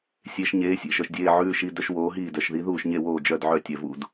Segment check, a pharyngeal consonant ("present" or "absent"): present